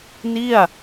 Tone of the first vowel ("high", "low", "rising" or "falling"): falling